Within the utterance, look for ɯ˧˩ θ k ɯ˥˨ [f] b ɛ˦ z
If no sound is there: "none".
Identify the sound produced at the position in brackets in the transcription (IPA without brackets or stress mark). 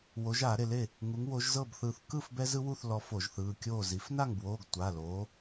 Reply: f